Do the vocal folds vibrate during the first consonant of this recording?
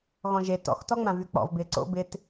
yes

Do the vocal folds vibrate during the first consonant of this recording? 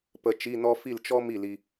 no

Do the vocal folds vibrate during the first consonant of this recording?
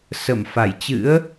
no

